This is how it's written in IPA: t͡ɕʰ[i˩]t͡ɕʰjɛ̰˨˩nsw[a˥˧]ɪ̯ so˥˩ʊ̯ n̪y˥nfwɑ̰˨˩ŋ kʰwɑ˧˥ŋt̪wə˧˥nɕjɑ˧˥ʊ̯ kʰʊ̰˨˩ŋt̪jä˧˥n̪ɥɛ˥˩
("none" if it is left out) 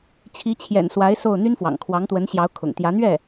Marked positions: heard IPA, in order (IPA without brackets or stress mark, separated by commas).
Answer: i˧˥, a˧˥